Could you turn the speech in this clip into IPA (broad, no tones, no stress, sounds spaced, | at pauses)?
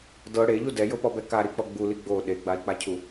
d ɤ ɽ e ʎ u d ɛ j ɤ p ɔ b ɛ k a ɾ i k͡p ɔ ɡ͡b u l i ɡ͡b o ɗ e ɡ͡b a i̯ k͡p a cʰ u